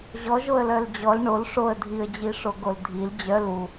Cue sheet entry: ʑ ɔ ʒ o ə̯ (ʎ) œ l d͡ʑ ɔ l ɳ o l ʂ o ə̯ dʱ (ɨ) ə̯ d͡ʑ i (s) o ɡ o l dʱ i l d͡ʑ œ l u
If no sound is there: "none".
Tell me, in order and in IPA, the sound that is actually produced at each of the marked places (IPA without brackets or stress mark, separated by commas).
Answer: l, i, ʂ